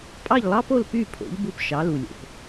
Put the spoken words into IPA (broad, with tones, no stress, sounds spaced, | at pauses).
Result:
pʼ ɑ˥˩ ʎ lˠ ɑ˥ p o˥˩ l p y˥˩ pʰ o̰˩˥ ʎ b u˧ p ʃ ɑ˩˥ l u˩ lʲ o̰˩ p